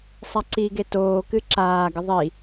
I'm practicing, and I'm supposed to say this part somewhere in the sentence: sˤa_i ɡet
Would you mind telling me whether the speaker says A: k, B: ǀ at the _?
B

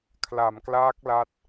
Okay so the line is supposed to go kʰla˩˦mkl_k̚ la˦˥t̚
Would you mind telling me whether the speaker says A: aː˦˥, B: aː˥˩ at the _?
A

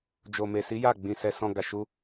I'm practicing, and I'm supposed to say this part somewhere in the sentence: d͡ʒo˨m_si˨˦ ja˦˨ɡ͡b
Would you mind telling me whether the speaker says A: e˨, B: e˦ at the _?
A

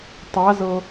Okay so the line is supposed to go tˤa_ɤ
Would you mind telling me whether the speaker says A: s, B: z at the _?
B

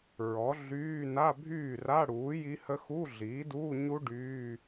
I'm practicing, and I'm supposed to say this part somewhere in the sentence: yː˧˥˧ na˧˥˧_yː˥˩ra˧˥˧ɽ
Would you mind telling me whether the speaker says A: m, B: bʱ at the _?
B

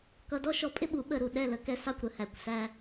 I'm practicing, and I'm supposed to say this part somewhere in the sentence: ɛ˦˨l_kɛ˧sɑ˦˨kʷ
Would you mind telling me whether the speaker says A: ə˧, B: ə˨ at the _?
A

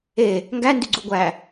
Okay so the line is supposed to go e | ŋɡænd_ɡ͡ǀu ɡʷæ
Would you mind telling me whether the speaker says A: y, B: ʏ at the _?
A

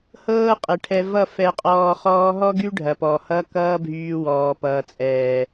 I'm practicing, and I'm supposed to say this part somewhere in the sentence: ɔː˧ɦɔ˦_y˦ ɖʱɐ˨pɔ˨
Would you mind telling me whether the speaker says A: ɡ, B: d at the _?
A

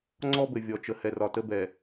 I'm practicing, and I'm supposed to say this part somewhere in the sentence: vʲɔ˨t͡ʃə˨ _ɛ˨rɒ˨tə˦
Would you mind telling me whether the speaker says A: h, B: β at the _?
A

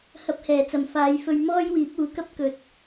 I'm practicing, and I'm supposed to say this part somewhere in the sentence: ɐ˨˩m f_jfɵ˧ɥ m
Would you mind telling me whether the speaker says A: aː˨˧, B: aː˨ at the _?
A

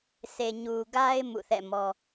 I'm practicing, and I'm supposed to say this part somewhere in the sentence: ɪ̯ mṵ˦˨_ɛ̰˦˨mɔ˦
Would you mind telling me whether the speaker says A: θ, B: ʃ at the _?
A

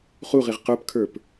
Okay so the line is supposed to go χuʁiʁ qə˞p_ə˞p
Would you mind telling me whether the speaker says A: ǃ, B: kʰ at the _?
B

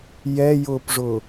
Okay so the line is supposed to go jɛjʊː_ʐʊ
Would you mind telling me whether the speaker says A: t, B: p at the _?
B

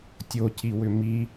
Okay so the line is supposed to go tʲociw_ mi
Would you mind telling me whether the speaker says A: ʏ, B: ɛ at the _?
A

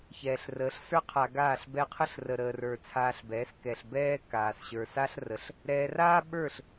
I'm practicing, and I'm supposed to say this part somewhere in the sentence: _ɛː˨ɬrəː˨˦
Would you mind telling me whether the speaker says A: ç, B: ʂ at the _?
A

